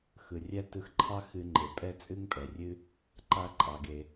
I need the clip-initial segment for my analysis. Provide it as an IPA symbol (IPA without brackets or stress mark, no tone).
x